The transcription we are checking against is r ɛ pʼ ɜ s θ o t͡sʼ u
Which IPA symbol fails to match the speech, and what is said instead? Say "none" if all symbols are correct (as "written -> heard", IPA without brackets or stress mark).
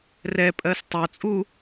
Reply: θ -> tˤ